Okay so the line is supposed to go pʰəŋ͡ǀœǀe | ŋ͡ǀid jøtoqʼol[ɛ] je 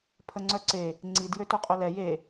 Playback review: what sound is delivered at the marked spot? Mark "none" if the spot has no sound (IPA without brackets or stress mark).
ɛ